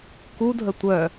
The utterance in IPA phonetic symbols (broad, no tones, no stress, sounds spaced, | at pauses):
k u dʱ ə tʷ œ